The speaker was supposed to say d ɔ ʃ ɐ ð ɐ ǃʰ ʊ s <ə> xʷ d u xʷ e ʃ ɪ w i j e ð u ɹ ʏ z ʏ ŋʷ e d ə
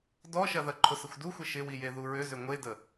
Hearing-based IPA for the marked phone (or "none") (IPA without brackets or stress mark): ɪ